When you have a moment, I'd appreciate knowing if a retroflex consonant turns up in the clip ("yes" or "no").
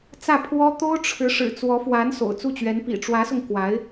yes